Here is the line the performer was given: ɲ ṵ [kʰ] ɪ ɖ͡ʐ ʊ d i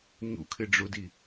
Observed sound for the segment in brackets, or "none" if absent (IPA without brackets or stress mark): kʰ